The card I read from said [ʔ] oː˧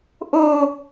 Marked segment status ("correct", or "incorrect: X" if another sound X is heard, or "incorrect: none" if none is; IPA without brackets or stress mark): correct